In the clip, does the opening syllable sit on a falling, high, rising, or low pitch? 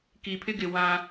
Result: low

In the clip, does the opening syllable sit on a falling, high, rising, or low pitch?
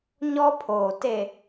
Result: high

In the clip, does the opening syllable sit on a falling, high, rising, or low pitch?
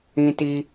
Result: high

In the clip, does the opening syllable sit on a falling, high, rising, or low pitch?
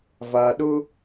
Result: low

